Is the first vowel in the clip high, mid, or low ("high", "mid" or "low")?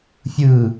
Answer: high